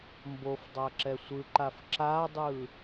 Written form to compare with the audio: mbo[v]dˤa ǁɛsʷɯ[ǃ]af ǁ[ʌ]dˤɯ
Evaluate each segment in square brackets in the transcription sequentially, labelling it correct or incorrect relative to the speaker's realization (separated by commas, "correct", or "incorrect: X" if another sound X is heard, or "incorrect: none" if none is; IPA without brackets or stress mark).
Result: incorrect: f, correct, incorrect: a